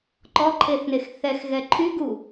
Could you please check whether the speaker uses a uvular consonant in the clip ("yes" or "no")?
no